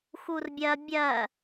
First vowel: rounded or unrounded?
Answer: rounded